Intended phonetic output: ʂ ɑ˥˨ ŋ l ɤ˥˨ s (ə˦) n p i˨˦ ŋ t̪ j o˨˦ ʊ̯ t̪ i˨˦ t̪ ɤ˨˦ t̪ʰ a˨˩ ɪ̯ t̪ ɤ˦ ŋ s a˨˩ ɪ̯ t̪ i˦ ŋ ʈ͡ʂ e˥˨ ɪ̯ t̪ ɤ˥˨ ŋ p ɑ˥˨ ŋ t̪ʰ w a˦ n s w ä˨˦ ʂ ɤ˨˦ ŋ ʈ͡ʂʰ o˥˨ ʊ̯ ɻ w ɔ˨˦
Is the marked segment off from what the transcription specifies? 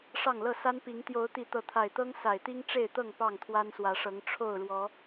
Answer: yes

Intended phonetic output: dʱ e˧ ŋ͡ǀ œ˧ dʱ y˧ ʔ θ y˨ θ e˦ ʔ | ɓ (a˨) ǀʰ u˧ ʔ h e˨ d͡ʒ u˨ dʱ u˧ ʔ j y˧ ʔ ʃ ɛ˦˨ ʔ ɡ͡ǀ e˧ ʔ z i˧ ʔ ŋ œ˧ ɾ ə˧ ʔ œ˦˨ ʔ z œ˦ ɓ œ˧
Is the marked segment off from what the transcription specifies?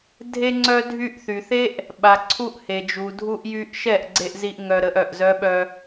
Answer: no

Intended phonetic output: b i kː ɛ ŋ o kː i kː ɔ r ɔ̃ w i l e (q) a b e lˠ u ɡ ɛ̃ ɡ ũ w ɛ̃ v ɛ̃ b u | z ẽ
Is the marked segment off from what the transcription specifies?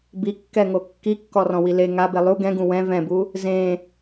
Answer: yes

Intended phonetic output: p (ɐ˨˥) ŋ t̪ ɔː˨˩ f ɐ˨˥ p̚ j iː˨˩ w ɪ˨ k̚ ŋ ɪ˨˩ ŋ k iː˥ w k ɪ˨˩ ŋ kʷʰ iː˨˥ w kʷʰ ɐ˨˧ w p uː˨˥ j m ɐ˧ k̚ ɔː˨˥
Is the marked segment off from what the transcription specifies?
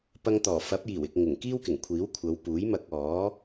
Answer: yes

